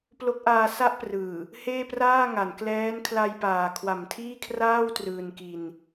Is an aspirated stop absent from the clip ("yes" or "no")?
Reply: no